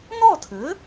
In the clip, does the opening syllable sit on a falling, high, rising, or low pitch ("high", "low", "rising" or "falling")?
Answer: falling